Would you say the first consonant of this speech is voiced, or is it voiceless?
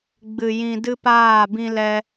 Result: voiced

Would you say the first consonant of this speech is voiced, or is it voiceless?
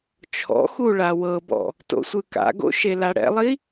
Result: voiceless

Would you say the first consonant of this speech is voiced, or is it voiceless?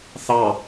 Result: voiceless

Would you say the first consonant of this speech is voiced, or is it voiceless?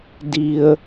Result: voiced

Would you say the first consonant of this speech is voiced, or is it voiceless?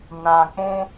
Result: voiced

